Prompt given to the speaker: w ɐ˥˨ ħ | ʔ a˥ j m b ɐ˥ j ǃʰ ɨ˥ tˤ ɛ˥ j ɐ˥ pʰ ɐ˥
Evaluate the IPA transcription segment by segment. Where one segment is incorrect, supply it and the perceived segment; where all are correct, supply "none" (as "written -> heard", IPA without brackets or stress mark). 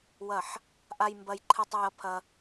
none